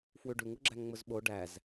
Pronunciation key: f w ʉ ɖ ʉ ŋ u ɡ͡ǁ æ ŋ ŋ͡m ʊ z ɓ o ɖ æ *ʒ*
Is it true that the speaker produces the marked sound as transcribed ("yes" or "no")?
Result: no